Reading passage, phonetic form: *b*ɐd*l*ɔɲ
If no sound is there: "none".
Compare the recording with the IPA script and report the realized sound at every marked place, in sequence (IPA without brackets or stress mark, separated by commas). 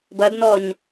b, n